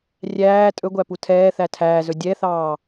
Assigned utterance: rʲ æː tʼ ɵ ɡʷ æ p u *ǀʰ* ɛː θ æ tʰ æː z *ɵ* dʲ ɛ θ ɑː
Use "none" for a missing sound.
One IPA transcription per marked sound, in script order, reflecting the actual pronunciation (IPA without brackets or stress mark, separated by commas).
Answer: tʰ, ɵ